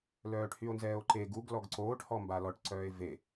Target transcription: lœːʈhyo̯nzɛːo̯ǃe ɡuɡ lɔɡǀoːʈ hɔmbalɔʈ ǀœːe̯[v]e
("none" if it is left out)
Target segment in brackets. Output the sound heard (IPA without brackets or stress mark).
v